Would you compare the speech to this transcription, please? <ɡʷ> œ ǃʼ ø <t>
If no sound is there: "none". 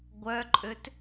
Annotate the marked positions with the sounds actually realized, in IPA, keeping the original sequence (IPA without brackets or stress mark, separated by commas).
ɡʷ, t